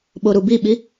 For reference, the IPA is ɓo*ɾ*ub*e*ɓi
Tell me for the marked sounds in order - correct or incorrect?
correct, incorrect: i

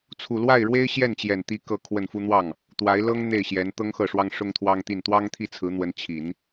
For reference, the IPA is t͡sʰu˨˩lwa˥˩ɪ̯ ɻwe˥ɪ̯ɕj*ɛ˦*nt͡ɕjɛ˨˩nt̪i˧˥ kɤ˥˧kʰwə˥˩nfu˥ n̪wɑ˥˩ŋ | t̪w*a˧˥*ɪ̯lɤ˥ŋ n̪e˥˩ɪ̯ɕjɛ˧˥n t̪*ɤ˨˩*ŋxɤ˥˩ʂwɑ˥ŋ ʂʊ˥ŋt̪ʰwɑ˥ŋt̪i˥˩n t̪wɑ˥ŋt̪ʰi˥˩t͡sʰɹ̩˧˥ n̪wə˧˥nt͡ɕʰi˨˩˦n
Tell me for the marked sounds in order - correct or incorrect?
incorrect: ɛ˥˩, correct, incorrect: ɤ˥

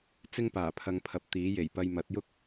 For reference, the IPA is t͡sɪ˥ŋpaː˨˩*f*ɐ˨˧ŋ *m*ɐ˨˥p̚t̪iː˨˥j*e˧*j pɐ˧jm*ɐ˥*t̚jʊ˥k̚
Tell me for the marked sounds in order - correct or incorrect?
incorrect: pʰ, incorrect: pʰ, incorrect: e˨˩, incorrect: ɐ˨˥

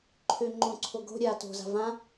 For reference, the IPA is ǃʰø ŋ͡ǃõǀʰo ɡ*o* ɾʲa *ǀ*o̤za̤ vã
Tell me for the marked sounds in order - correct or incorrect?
incorrect: o̤, incorrect: t

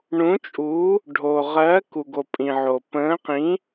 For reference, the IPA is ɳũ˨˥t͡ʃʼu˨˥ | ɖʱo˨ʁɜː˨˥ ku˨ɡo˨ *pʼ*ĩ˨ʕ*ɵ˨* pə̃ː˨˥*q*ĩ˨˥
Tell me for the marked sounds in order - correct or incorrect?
correct, incorrect: o˨, correct

